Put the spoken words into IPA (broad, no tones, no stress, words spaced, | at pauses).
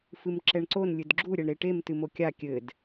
fɨmǁɛɳǀon lʲɨdɡ͡ǁu ɾʲɛɳɾeʈem tɨmokʲa kʲɘd